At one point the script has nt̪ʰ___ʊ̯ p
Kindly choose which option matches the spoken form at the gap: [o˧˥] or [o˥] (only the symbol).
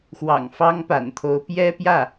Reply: o˧˥